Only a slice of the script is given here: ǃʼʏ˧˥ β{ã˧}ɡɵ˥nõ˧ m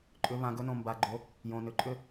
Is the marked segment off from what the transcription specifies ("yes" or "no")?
no